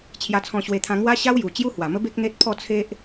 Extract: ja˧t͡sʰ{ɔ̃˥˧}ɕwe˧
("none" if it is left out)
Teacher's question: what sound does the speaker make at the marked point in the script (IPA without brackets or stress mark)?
ɔ̃˧